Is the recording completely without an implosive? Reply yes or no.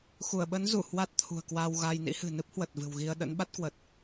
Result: no